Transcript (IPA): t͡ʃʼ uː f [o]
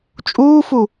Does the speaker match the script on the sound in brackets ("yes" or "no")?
no